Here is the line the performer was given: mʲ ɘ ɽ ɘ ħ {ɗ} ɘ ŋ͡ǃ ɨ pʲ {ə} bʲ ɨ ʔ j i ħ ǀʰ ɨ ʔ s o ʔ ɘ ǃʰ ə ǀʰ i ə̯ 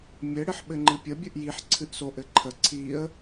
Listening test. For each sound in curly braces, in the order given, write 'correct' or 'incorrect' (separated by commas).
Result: incorrect, correct